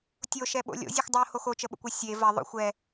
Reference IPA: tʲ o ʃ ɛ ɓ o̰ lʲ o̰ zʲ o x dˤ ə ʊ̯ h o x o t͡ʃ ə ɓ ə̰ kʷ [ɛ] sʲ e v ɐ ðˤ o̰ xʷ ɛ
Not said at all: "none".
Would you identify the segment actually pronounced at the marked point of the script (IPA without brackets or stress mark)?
ɛ